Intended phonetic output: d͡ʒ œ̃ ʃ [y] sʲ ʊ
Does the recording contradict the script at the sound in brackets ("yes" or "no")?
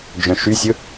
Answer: no